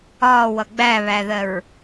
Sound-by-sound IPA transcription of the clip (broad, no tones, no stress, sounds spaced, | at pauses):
ɒː w ʌ ɡ͡b æ β æ ð ɜ ɹ